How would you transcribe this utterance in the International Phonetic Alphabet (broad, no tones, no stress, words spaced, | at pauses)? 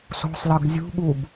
so̤sˤlɤɡ zʲṳɠub